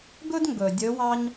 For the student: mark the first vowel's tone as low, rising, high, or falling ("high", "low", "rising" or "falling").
high